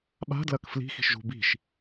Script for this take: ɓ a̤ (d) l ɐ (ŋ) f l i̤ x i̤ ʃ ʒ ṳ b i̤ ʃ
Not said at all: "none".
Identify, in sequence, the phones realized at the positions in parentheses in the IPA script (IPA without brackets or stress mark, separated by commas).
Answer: d, k